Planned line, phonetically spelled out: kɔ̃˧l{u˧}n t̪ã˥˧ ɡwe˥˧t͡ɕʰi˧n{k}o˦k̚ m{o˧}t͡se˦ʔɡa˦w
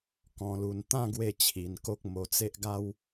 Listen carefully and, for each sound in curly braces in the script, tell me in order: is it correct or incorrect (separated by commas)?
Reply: correct, correct, correct